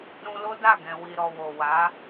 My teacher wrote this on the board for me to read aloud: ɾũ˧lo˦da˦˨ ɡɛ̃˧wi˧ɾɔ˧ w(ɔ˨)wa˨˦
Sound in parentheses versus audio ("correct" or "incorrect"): incorrect